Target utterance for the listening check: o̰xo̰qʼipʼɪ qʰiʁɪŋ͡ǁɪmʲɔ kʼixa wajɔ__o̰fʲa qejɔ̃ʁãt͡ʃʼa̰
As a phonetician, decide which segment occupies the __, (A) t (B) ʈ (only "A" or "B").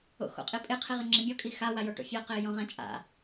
B